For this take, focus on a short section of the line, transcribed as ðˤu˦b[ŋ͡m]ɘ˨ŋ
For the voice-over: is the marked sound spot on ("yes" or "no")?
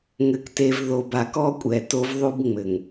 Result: yes